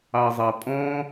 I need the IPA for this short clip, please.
ɑ zˤ ɑ pʼ ɔ̃

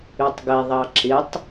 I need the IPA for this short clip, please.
y tˤ ɡ ɛ ðˤ ɑ ǁ ɪ tˤ

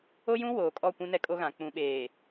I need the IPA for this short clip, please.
o˦ j ũ˦ w oː˨ kʼ ɔ˦˨ kʷ ũ˦ n ɛ˦ kʼ o˦ ɣ ã˨ k͡p ũ˨ ɓ eː˨

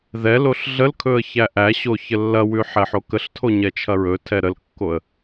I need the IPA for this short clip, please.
ð ɛ l o ɬ ɮ ə l kʰ ɵ ə̯ ç æ ʔ æ ɕ o ç ə lː ɐ w ʉ ħ ɛ ħ o k ə ɬ tʰ o ɲ ɛ t͡ʃʰ ɐ ɹ ɵ tʰ ɛ ɾ ə l kː o ə̯

